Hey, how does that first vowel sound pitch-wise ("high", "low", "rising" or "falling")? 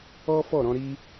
high